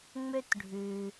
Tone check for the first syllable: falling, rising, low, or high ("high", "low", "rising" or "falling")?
high